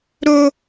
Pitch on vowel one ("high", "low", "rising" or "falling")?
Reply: high